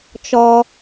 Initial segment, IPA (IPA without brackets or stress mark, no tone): t͡ʃ